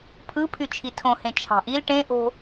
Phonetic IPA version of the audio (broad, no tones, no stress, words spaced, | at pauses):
pʰɯpʰy t͡ʃʰitʰõhẽ t͡ʃʰɑ̤ʔil ʈẽʔo̤